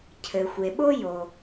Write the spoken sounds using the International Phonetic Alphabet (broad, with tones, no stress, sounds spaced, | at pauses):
cʰ ɘ˩ xʷ e˩ ɓ o˦ j o˩